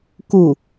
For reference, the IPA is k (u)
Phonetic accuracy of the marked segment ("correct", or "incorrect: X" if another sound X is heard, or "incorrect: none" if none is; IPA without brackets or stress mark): correct